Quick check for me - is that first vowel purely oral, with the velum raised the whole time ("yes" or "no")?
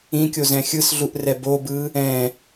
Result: no